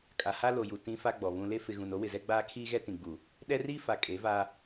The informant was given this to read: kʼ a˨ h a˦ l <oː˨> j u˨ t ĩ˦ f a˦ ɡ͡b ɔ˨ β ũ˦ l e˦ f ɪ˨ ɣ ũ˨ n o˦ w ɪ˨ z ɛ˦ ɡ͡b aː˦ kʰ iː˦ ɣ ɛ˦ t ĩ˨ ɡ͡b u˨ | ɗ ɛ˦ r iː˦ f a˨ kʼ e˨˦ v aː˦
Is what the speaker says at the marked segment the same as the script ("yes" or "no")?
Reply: no